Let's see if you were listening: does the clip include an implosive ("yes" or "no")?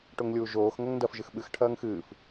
yes